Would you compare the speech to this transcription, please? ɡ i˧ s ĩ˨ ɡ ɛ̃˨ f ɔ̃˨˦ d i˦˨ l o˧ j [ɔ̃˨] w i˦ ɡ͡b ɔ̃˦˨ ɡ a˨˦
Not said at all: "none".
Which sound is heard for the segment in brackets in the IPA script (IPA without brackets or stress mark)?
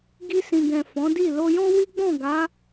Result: ɔ̃˦